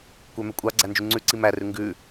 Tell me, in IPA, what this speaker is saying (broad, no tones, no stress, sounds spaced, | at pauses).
kʷ œ m ɛ kʷʼ ɑ ɡ͡ǀ æ n d͡ʒ y ŋ͡ǀ ʉ ǀ i m æ r ʉ ŋ ɡ ʉ